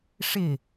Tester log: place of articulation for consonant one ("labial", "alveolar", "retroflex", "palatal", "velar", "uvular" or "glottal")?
retroflex